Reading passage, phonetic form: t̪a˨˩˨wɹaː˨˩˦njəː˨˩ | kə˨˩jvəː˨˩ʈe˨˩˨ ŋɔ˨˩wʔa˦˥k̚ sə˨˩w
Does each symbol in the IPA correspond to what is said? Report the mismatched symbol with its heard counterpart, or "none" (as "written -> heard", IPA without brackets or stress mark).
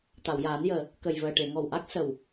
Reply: ɹ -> j